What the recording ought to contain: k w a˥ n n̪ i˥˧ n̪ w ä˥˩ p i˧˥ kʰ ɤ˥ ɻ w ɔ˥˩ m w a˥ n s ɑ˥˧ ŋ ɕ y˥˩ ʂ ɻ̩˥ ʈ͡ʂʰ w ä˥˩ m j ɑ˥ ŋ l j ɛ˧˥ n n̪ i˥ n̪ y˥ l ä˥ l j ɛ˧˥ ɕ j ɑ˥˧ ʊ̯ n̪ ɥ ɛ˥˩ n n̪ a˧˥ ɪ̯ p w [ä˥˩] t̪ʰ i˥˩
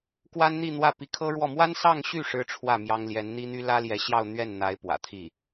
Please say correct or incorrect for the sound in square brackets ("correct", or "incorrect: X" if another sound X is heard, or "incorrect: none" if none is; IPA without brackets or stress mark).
incorrect: ä̰˨˩